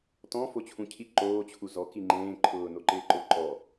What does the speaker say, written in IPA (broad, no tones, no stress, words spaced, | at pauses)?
tɔ̃ fot͡ɕʰũcʰi ǃoː t͡ɕʰuzɔ kiŋ͡ǃẽː ǃʰʊːnoǃɪːǃʊ ǃɔ